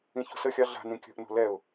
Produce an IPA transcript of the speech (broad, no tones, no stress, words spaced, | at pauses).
ĩço̤səxʲɑ ɮa̤nĩ kʲə̤ʔno̤ lɛʊ̯